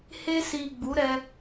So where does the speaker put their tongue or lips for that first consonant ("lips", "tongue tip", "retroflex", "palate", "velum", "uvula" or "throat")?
throat